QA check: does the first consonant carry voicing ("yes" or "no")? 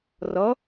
yes